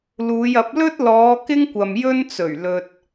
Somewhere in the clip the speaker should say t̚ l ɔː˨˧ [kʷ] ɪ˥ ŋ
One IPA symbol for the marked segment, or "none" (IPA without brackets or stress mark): k